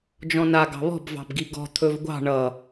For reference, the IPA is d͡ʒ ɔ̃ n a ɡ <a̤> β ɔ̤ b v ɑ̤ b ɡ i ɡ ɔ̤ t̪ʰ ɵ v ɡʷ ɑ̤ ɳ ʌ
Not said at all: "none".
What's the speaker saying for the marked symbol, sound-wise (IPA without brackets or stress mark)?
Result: ɑ̤